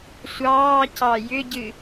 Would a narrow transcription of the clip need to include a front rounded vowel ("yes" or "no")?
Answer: yes